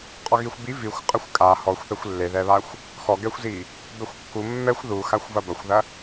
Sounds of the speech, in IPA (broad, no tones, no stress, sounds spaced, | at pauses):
qʼ ɔ ɣ i xʷ b i v i xʷ qʼ ɐ xʷ kʼ a h ɔ xʷ θ ɛ xʷ lː e ð ɛ β a xʷ | x ɔ ɡ ɛ xʷ z i | b ɛ xʷ kː u mː ɛ xʷ ð u x a xʷ v ɐ b ɐ xʷ ð ɐ